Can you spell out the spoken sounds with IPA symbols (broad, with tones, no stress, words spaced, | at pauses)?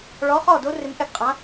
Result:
ɭɔ˨˥χɔ˥˩do˦˥ rɪ˧mʔɛ˥˩ɡqʼã˨˥